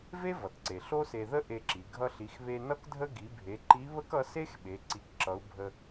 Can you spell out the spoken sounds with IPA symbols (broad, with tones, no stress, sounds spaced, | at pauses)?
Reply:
v e˥ v ʌ˩ t ǀ e˩ ɬ o˥ s e˧ ð ə˥ ʔ e˧ ǁ i˩ ɡʱ ʌ˧ ɬ i˩˧ x β e˧ n ʌ˥ k dʱ ə˥ ɡ i˩˧ bʱ e˩˧ ǃ i˧˥ β ə˥ k ʌ˧˥ s e˥ x ɓ e˩˧ ǀ i˩˧ k ǁ ʌ˩˧ u̯ bʱ ə˧